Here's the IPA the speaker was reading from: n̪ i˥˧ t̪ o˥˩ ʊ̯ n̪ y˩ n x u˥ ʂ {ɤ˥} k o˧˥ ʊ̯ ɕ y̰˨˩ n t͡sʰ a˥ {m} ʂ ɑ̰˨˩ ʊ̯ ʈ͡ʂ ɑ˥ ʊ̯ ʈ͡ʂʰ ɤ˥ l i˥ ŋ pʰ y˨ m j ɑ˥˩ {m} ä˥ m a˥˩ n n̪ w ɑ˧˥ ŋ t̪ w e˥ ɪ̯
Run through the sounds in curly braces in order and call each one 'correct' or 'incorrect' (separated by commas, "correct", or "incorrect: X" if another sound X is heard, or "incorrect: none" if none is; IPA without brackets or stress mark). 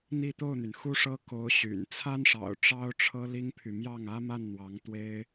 correct, incorrect: n, incorrect: ŋ